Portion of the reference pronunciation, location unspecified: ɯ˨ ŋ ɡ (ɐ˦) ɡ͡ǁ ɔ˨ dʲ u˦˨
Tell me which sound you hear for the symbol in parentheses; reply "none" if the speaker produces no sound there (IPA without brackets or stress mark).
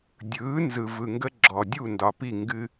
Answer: ə˦